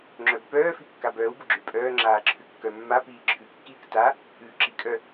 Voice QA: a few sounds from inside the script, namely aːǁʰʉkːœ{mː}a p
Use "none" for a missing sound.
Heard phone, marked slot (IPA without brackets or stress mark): mː